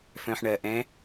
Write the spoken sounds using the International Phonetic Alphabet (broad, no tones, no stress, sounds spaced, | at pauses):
f œ̃ ħ ɳ ɜ ʔ ɛ̃ː